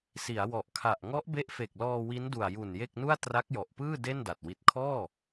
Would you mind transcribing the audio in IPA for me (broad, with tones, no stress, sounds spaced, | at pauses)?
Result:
s i˩˦ a̯ w ɔ˨˩ ʔ kʰ a˨˩ ʔ ŋ ɔ˦˥ ʔ b e˦˥ ʔ f e˨˩ k̚ l ɔː˧ w i˦˥ n d u˨˩ a̯ j u˨˩ n j e˥˩ k̚ n u˥˩ a̯ t r a˦˥ k̚ j ɔ˨˩ ʔ p ɯː˥˩ d e˥˩ n d a˨˩ t̚ w i˨˩ t̚ kʰ ɔː˥˩